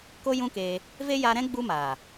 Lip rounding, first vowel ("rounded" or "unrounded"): rounded